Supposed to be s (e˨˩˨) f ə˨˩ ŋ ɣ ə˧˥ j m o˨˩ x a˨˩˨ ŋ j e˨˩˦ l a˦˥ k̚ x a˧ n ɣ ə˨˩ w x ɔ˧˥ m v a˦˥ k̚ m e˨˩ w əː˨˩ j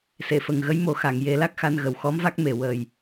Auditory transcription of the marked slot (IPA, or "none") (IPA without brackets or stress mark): e˨˩˨